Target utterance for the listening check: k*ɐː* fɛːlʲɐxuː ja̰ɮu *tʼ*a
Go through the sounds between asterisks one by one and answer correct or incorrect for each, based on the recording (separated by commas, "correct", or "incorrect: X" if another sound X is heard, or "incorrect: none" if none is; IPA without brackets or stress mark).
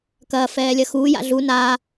correct, incorrect: n